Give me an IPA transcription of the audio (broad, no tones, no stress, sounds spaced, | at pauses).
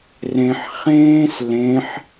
r ẽ ħ χ ẽː s l ẽ ħ